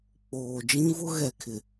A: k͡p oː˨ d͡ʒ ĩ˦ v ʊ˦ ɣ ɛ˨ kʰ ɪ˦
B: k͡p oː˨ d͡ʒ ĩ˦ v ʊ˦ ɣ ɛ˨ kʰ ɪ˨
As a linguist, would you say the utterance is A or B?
B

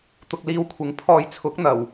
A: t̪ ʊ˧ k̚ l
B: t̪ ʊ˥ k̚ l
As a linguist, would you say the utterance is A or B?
A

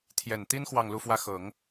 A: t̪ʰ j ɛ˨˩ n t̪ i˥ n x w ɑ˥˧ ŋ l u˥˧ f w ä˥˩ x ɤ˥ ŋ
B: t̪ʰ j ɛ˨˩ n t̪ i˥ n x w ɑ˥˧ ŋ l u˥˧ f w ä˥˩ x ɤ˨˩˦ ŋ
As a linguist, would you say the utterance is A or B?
B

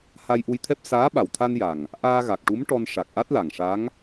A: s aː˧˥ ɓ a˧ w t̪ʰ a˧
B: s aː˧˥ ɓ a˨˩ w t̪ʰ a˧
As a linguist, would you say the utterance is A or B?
B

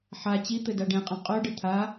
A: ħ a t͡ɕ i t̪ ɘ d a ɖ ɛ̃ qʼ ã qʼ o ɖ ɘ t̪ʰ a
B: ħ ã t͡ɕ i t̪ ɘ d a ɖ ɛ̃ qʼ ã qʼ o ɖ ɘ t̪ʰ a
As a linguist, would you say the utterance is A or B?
A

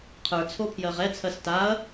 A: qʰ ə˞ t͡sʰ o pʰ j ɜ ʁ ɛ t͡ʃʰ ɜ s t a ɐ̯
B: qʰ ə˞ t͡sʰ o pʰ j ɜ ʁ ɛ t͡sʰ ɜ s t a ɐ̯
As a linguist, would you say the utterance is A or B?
B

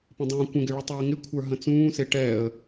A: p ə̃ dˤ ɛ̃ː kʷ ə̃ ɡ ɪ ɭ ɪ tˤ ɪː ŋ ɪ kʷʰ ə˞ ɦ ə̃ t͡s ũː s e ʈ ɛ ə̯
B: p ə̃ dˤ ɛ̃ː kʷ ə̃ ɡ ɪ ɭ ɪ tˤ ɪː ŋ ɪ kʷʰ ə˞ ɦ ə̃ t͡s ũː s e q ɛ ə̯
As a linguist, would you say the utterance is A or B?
A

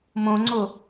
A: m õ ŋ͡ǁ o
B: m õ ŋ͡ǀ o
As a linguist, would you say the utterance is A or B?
B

